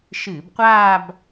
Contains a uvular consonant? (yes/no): yes